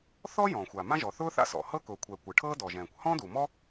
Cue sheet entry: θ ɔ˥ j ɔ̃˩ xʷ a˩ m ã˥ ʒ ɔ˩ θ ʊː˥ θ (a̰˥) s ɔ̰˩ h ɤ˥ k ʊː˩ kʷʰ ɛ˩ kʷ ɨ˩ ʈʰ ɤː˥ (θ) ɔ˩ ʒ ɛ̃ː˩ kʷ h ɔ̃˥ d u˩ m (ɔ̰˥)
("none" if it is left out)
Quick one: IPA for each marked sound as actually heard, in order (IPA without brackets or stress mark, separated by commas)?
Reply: a̰˥, d, ɔ˥